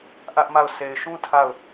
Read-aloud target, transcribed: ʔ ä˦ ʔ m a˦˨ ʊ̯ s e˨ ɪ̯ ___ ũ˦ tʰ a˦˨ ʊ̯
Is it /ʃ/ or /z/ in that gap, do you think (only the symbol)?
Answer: ʃ